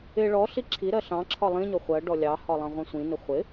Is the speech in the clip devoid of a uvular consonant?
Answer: no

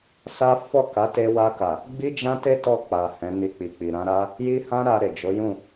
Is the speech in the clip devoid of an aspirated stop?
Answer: yes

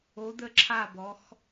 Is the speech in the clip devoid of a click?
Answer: no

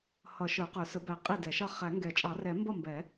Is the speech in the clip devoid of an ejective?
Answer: no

